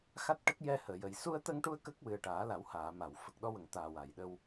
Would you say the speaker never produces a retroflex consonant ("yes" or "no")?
no